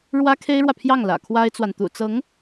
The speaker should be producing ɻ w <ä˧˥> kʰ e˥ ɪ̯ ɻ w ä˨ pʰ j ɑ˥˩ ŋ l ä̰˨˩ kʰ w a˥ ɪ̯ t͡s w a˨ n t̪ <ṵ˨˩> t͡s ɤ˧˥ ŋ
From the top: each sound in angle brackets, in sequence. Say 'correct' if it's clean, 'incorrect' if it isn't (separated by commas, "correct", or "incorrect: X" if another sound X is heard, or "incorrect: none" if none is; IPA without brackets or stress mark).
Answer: incorrect: ä˥, correct